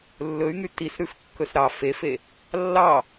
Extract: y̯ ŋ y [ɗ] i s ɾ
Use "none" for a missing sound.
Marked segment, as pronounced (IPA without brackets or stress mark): t